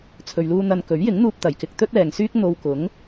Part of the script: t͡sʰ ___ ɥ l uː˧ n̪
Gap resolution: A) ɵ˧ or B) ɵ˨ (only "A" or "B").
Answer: B